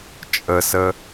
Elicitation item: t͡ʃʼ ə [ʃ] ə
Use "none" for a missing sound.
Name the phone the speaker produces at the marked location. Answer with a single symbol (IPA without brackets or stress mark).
s